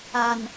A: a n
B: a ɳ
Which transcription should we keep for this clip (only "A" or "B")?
A